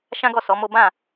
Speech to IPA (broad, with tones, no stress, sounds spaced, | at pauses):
ʃ ã˦ ɡ ɔ˦˨ s ɔ˨˦ m o˦ b ã˦˨